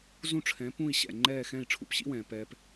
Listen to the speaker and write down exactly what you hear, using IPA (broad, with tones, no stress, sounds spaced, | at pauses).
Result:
z ũ˥˩ ʈ͡ʂʰ ɛ̃˩˥ p ũː˥˩ i̯ ɕ ɛ̰˩ ŋ͡ǃ ɛː˥˩ x ɛ̃ː˥˩ i̯ ʈ͡ʂʰ ṵ˧ p ɕ ḭ˥ w ɛ̃ː˩ p ɛː˧ p